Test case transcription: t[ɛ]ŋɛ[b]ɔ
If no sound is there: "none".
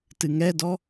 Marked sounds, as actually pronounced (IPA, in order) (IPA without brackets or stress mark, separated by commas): ɨ, d